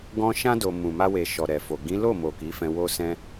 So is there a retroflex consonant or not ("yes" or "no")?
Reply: no